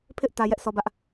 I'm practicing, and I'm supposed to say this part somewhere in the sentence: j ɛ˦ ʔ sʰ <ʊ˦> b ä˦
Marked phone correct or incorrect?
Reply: incorrect